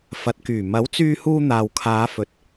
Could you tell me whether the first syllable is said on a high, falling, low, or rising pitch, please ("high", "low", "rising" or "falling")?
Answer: rising